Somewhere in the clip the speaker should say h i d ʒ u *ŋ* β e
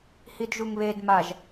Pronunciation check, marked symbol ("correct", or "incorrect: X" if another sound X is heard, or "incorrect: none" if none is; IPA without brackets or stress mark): correct